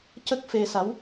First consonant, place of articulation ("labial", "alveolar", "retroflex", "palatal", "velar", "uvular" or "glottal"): palatal